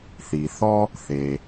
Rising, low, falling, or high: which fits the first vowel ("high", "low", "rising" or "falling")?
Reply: low